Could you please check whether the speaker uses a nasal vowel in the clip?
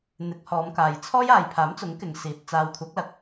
no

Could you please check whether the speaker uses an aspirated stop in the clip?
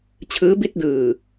yes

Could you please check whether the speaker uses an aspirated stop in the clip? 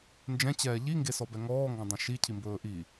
yes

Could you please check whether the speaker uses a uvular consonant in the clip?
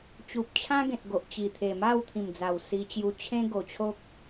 no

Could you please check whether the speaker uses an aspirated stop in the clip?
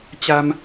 no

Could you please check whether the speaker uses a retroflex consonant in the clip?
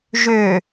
no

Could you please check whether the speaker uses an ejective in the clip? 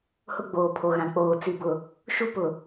no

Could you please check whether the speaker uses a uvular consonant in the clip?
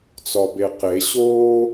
yes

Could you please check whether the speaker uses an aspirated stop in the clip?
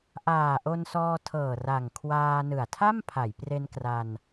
yes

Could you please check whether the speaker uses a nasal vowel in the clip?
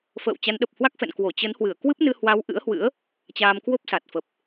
no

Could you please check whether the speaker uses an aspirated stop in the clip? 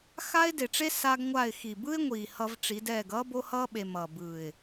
no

